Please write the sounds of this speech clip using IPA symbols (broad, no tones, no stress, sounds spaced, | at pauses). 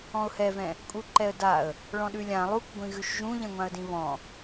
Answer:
ɔ̃ ʊ̯ h ɛ v ɛ̃ | kʼ u ǃ ɛ ə̯ d a ə̯ | ɭ ɔ̃ ɗ ʉ lʲ ã lˠ u k ɡʷ ĩ ɣ ʉ ʃ ʒ ũ ʎ ɛ̃ ŋʷ ã ə̯ d ĩ β ɔ̃